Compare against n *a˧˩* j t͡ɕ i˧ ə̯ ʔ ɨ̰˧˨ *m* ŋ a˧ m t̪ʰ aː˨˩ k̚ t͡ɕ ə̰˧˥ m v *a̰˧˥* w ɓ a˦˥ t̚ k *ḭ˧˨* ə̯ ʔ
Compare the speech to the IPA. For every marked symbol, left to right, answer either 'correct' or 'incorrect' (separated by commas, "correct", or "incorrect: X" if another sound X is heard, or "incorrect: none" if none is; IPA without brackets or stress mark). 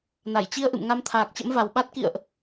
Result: correct, correct, incorrect: a˨˩, correct